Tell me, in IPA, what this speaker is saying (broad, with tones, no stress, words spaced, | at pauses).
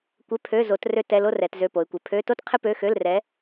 kʷɪ˧˥˧pʰø˧˥˧ zo˨˦t rø˥tɛ˧˥˧lo˥rɛ˨˦t zø˧˥˧po˨˦ɪ̯kʷɪ˨˦ pʰø˧˥˧to˥t qʰɪ˥pø˧˥˧xø˧˥˧l rɛ˨˦